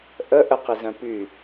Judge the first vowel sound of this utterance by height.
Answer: mid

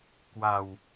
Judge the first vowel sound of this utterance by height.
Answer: low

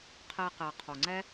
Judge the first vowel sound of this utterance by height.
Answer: mid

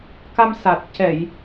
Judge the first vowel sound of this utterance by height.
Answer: low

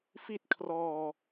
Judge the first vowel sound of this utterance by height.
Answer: high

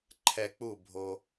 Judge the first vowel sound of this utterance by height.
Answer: mid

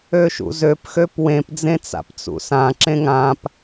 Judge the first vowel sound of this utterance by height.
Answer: mid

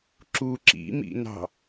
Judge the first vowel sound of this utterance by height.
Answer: high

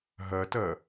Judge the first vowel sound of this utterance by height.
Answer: low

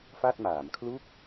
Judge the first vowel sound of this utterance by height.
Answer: low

